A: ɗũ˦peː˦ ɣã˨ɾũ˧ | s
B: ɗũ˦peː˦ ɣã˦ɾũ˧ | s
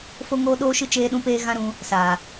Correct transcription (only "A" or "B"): B